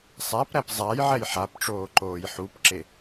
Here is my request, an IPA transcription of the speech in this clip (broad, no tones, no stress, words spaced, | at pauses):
sˤæpɾæp zˤajʕɛj ħapʈ͡ʂoːǃoːj ħupǁe